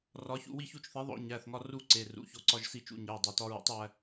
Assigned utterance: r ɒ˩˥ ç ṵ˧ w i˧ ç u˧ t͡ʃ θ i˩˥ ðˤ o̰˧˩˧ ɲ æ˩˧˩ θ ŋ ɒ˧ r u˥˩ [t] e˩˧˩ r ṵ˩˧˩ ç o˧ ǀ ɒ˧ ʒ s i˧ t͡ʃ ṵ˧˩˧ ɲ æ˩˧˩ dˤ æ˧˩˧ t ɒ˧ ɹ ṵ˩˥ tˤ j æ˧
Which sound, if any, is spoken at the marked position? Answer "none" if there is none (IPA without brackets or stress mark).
ǀ